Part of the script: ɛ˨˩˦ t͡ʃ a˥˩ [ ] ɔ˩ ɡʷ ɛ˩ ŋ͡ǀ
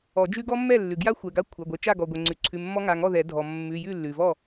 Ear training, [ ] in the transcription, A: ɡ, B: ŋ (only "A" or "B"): A